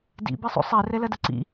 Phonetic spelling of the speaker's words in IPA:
d ḭ b i sˤ ṵ sˤ ɛ r ɛ l ɐ d ə ǀ ḭ

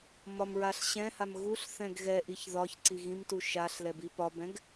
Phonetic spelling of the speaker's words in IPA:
m ɒ m ɹ a ɬ ɕ ɛ̃ h a m ɣ u ɬ θ ɛ̃ ɡ ɣ ɛ ʔ i ç ð ɒ ç ǀ i ɣ ĩ m t u ʃ a ɬ l ɛ b i p ɒ b ɛ̃ ɡ

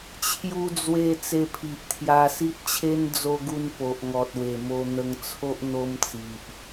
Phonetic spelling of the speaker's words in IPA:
t͡ɕʰ j u˧ d͡z w e˧ t͡s e˧ pʰ i˨ ʔ t̪ʰ j a˧ s i˦ t̚ t͡ɕʰ e˦ n d͡z o˧ ɡ u˧ n p o˨ ʔ ŋ ɔ˨ t̚ w e˨˩ m o˧ n̪ ə˧ ŋ t͡sʰ o˦ ʔ n̪ o˦ m t͡s i˨ ʔ

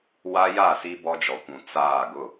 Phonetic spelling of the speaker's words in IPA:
w a˦ j a˦˨ s i˦ b ɔ˦ d͡ʒ ɔ˨ kʷ ũ˨ t͡s aː˦˨ ɡ ʊ˦˨

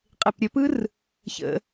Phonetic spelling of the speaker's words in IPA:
qʼ e p ɾʲ ə p ɯ r | ç ə̰

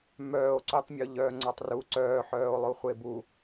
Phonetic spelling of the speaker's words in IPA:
m œː o̯ ǀ u tˤ mʲ o ʎ œː ŋ͡ǀ ɔ tˤ r u ǀ œː ħ œː o̯ lˠ o χʷ e b u

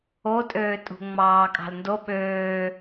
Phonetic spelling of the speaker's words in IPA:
o tʼ øː tʼ ṳ ŋ͡m ɑː kʼ ɑ̤ l n d o ɓ øː

